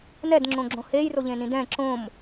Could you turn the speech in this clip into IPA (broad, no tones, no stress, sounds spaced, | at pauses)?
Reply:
n ɛ d ŋ͡ǁ õ ɡ͡ǁ õ h e j r o ʎ ẽ n ĩ d ɛ̃ ǁ õ m